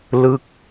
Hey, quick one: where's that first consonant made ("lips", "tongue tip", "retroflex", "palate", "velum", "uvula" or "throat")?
tongue tip